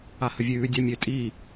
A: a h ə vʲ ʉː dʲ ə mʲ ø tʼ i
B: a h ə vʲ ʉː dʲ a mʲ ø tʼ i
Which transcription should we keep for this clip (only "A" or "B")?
B